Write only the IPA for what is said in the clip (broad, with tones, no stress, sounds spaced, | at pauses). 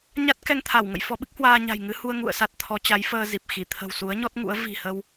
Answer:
ɲ a˦˥ t̚ k ɛ˧ ŋ t̪ʰ a˧˩ w ŋ ə̰˧˨ j f ɔ˧ ɓ ɨ˦˥ k̚ h w aː˧ ɲ a̤˨˩ j ŋ ɨ˨˦ h u˧ ə̯ ŋ ṵ˧˨ ə̯ s a˦˥ t̚ t̪ʰ ɔ˨˦ t͡ɕ a˨˦ j f əː˧ z i˨˩ p̚ x i˧˩ t̪ʰ ə̤˨˩ w s u˨˦ ə̯ ɲ ɔ˦˥ t̚ ŋ ṵ˧˥ ə̯ v i̤˨˩ h ə˧ w